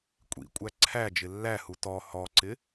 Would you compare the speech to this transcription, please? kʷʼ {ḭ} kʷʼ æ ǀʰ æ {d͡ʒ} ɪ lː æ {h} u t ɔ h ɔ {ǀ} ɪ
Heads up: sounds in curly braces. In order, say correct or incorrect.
correct, correct, correct, correct

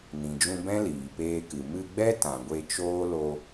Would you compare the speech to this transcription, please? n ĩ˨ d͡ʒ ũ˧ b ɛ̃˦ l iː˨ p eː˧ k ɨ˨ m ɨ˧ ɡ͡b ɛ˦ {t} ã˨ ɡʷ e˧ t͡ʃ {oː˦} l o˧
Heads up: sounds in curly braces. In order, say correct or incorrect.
correct, correct

